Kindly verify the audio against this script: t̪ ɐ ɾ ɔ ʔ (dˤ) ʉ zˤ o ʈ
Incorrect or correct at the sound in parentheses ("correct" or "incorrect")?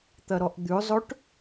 incorrect